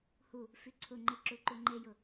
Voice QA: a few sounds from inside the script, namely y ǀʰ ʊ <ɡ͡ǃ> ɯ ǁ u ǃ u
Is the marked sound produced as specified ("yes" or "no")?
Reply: no